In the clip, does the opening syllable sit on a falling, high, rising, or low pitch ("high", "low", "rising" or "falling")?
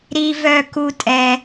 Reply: high